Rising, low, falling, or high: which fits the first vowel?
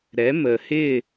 rising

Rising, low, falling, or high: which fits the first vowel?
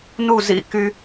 falling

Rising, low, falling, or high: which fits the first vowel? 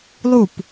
falling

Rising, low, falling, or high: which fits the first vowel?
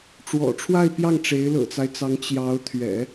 low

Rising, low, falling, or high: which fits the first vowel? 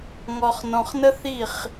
low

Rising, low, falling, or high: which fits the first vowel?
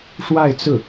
falling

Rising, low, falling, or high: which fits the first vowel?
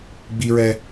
high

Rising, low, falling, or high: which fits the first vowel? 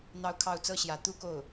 falling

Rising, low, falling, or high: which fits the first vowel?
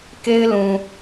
high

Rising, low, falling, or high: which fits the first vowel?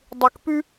low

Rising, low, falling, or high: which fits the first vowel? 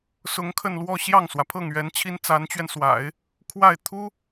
rising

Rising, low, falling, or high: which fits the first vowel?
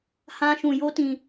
high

